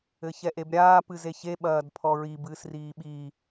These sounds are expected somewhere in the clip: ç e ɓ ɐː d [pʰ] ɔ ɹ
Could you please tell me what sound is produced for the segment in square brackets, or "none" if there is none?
pʰ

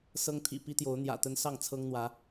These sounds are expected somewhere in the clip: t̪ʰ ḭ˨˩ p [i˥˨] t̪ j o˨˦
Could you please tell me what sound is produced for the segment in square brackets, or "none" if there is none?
i˦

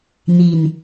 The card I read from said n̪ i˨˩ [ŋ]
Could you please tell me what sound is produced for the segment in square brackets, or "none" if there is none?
n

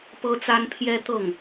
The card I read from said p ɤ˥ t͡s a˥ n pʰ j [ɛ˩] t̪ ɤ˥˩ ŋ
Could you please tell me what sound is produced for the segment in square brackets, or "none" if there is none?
ɛ˥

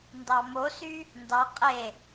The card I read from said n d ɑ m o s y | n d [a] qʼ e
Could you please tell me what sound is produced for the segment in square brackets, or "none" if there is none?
ɑ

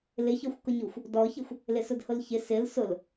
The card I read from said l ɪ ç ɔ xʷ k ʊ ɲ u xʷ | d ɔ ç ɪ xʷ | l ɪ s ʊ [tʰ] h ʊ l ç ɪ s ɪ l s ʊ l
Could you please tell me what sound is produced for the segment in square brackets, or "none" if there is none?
d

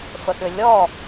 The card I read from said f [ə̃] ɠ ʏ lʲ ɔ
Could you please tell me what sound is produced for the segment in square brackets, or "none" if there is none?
ə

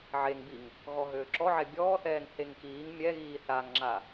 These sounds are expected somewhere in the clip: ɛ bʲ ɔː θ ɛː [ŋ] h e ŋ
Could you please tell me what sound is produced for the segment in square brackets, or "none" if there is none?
ŋ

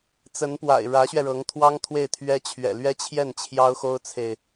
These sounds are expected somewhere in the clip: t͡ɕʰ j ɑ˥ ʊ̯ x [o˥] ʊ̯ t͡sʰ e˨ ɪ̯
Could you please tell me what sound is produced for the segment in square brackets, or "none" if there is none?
o˥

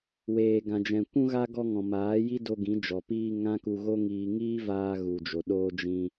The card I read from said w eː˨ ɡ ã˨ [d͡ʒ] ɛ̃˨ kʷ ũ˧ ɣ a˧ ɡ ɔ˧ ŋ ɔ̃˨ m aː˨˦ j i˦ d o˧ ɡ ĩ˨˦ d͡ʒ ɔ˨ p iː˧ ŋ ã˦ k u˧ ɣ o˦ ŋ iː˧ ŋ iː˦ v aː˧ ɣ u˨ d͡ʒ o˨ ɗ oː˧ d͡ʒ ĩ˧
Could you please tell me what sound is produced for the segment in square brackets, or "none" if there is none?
d͡ʒ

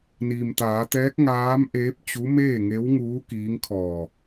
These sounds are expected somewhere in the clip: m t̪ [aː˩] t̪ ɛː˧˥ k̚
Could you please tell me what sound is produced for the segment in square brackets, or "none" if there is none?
aː˩˧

